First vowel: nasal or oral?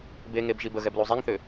oral